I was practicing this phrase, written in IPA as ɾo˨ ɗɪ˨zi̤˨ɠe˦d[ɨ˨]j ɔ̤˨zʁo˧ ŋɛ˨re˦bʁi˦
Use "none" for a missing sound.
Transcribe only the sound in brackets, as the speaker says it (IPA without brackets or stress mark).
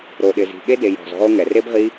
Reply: e˨